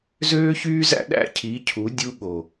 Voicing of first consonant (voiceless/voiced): voiced